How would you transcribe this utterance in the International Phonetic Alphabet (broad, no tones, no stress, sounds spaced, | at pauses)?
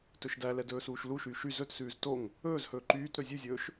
t ɵ ʃ d æ l ɛ d ɵː s uː ʃ l u ʃ yː ʃ y z ɵ t s ʉː z t o ŋ | ɵː z h ɵː ǃ yː t ɾ ɵ zʲ ʉ zʲ ɵː ʃ